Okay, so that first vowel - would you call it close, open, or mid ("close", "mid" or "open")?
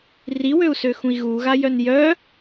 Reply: close